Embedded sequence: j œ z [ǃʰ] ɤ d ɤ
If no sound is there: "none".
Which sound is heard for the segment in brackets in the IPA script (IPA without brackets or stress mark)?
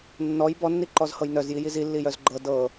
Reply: ɡ͡ǃ